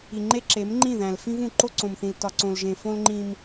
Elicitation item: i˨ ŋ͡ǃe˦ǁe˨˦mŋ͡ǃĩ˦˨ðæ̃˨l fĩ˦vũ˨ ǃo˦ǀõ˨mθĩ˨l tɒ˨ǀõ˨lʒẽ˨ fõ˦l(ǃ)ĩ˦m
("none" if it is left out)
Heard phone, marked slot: ŋ͡ǃ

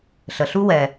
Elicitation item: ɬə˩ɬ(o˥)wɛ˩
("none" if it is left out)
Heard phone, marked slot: u˥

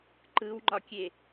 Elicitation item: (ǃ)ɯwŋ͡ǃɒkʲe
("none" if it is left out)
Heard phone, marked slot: ǃ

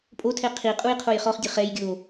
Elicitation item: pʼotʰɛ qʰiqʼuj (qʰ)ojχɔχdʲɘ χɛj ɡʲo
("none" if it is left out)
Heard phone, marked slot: qʰ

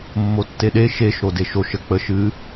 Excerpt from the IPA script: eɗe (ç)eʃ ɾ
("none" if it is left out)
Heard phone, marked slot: ʃ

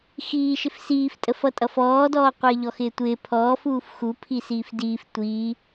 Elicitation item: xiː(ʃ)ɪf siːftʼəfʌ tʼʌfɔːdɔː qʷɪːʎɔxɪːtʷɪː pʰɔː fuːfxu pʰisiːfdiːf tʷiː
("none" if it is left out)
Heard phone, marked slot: ʃ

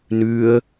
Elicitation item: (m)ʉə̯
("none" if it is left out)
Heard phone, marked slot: n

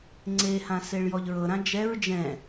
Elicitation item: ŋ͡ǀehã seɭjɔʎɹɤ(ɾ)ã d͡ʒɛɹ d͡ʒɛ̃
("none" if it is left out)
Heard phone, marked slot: ɾ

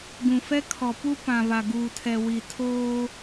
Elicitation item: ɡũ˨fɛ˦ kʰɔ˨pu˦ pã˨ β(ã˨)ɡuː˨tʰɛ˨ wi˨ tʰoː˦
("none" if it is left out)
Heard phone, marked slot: a˨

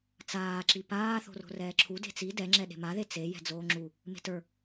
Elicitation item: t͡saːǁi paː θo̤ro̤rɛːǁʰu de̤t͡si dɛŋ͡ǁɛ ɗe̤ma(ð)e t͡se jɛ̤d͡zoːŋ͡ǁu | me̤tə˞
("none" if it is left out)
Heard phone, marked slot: ð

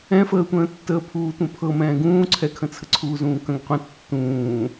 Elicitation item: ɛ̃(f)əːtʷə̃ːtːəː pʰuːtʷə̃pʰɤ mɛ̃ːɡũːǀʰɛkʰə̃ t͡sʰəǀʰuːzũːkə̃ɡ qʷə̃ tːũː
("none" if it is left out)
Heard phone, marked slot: f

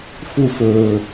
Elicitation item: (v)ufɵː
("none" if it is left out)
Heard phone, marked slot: f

